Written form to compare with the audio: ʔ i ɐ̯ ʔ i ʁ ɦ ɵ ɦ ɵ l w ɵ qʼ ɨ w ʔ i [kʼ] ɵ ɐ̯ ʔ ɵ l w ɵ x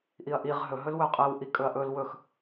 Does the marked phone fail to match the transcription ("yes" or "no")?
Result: no